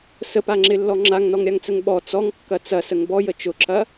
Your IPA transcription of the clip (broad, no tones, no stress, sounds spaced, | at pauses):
s ə p a ŋ͡ǁ ɪ lː ɔ ŋ͡ǁ a ŋ n ɔ ŋ ɾʲ a ŋ t͡s ə ŋ ɓ ɔ t͡s ɔ ŋ kː ɐ t͡s ɐ s ə ŋ b ɔ j ə t͡ʃ ʊ ǁ ɐ